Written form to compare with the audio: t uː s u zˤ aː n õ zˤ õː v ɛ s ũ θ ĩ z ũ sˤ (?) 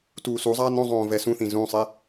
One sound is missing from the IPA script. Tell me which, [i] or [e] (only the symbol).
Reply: e